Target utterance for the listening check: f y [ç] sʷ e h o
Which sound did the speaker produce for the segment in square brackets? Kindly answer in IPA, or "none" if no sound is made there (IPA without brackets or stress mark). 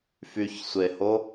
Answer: ç